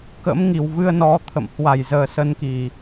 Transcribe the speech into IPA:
k ə̰˧˥ m ŋ i˨˩ w v ɨ˧ ə̯ n ɔ˨˦ t̪ʰ ə̰˧˨ m h w a˧˩ j z əː˨˩ s ə˧ n k i˨˩

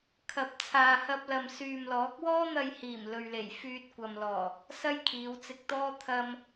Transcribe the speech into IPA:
kʰ ɐ˨˥ p̚ t͡sʰ aː˨ h ɐ˧ p̚ l ɐ˨ m s yː˨ m l ɔː˨˥ k̚ w ɔː˥ n̪ ɐ˧ j h iː˨˩ m l ɵ˨ ɥ l e˨˩ j f yː˧ t̚ kʷ ɐ˨ m l ɔː˨˩ | s ɐ˥ j kʰ iː˨˧ w t͡s ɪ˧ k̚ t̪ ɔː˥ t̪ʰ ɐ˧ m

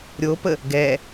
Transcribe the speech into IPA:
ɾʲ o p ə | ɡ ɛ

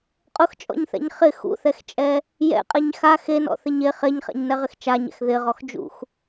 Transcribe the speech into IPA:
qʼ ʊ x t͡ʃʼ ɔ̰ ɲ θ ɛ̰ ɲ χ ɪ x ṵ θ ɛ x t͡ʃʼ ɛ | j ɛ̰ qʼ e ɲ x a x e n ɔ̰ θ ɪ ɲ e χ e ɲ χ ɛ̰ ɲ n ɛ ʁ ɪ x t͡ʃ a ɲ ɛ̰ x ð ɪ ʁ ɔ x d͡ʒ ṵ x

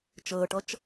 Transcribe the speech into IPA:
t͡ʃ əː ʈ ʌ t͡ʃ

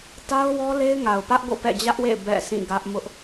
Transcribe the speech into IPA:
t a˦ ʊ̯ w ɔ˦ l e˦ ɪ̯ ŋ a˨ ʊ̯ p ä˦ ʔ ɡ o̰˦˨ p ɛ̰˦˨ d͡ʑ ä˦ ʔ w ḛ˦˨ ɪ̯ b ɛ̰˦˨ sʰ ĩ˦˨ ɡ ä˦ ʔ m ʊ˦ ʔ

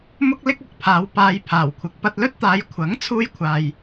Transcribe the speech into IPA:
m ʊ˥ k̚ l ɪ˥ k̚ ɐ˨˥ k̚ pʰ aː˨˧ w p aː˧ j pʰ aː˨˩ w kʷʰ ɪ˨˥ k̚ p ɐ˧ t̚ l ɵ˥ t̚ t̪ aː˨˧ j kʷʰ ɐ˨˥ ŋ t͡sʰ uː˧ j kʷʰ aː˨ j

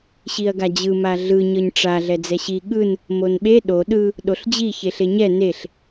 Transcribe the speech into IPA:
ɕ i ɐ̯ ɡ a d͡ʑ ɯ m a ɮ ɯ ɲ ɤ ɲ ʈ͡ʂ a ɮ ɛ d͡z ɛ ɕ i ɠ ɯ n | m o n ɓ e ɗ o ɗ ɯ | ɗ o ɬ d͡ʑ i ç e ɬ e ɲ ɛ n e ɬ

